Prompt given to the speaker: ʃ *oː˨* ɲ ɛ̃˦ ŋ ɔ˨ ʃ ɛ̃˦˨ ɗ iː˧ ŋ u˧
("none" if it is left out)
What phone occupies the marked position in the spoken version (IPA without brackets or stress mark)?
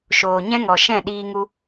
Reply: oː˨